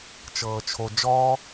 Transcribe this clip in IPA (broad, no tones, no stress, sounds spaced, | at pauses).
t͡ʃ ɤː t͡ʃʰ o d͡ʒ ɔ